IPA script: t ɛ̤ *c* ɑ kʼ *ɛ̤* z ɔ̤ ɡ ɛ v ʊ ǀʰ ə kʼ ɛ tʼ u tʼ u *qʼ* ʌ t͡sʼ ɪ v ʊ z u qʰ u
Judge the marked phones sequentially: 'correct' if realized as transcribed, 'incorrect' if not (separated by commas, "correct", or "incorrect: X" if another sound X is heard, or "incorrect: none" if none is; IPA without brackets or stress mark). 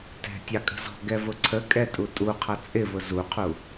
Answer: incorrect: tʲ, incorrect: ə̤, incorrect: qʰ